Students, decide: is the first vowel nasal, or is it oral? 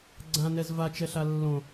nasal